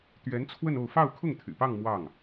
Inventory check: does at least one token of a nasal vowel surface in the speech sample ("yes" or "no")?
no